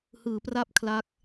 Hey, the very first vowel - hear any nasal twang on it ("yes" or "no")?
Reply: no